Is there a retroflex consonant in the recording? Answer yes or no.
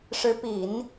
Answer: yes